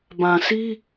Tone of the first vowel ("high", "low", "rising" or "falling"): low